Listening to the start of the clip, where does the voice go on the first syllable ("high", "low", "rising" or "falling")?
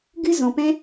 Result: high